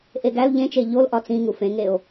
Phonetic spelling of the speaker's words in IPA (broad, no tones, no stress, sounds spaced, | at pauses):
ʔ e ɡ æ l ʎ ẽ t͡ʃ e ʎ o l ʔ ɒ t͡s ĩ ŋ u f ẽ ŋ e o̯